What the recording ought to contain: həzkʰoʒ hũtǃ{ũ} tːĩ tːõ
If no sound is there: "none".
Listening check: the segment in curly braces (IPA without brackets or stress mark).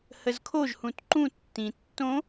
ũ